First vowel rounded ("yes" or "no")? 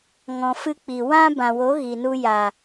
yes